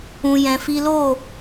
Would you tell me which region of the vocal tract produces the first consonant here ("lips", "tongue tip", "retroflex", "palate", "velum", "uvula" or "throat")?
palate